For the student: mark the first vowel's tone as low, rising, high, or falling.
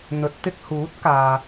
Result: rising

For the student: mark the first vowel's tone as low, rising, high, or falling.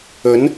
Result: rising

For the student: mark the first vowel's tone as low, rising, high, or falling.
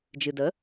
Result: low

